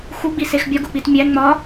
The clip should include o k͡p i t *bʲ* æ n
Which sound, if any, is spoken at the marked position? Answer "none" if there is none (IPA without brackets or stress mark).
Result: mʲ